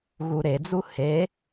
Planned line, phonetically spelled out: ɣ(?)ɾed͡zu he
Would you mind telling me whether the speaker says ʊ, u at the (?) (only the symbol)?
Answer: u